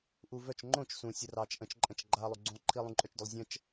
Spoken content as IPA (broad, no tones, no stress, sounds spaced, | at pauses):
ʔ u v œ t͡ʃ ŋ͡ǃ õ t͡ʃ s ũ sʲ ə r ɑ t͡ʃ ʔ ə̃ t͡ʃ ǃʼ ə̃ t͡ʃ ɡ͡ǃ a lˠ u ɡ͡ǀ ũ lˠ ǃʰ i lˠ ũ ǃʼ œ t͡ʃ d ʊ lˠ zʲ ə̃ t͡ʃ